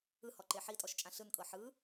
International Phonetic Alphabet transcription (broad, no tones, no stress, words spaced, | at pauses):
ɯhɔǃe ħitʼɔʃt͡ʃʼã ɬɯnkʼɤ ħɯ